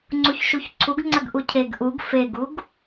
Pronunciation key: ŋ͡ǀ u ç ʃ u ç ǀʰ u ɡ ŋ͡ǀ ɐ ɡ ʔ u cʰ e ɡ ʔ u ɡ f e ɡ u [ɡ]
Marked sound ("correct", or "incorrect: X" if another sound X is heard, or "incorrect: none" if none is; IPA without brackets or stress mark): correct